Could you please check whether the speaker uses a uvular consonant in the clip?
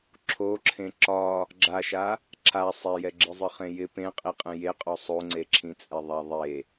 yes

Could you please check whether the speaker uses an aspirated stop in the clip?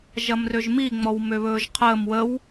yes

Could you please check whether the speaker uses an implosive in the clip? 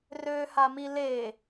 no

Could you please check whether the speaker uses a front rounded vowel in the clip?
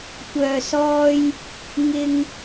yes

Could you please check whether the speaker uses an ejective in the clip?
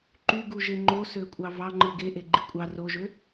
yes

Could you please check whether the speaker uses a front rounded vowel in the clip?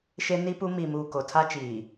no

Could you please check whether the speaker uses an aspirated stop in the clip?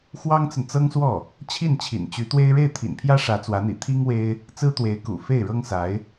yes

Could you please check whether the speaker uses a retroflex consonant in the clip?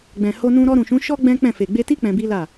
no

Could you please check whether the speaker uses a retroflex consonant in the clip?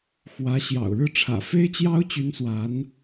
yes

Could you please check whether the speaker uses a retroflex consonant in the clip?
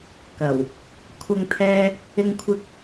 no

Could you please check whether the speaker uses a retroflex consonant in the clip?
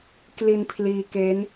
no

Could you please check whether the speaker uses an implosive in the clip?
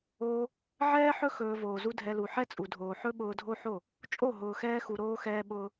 yes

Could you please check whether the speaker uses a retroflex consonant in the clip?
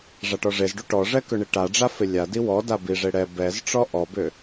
yes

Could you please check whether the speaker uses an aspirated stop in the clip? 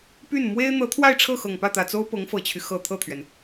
yes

